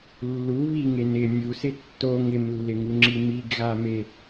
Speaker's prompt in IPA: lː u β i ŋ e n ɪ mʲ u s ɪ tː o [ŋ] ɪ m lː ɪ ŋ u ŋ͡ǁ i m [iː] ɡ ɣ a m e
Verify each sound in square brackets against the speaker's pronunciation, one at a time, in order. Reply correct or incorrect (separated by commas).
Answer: correct, incorrect